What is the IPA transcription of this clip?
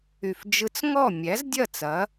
y˧˩ f d͡ʒ ɯ˦ t͡s ŋ ɔ˥˨ mʲ æ˨˥ z dʲ ɐ˥˨ t͡s ɐ˨˥

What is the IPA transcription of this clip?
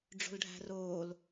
ɖ͡ʐ o̤ l ɖʱ æ̤ r oː l

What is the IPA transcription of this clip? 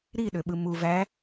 ɾ i ɗ ø ɓ ɯ m u v æ

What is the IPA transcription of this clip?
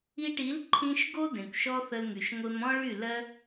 i˧ ʈ i˨˦ l ǃʰ ĩ˧ ʃ ɡ o˦ d ẽ˨ kʷ ʃ ɔ˦ θ ə˧ l ŋ y˨ ʃ ŋʷ e˧ m ɔ̃˦ ɭ y˦˨ l ɜ˦

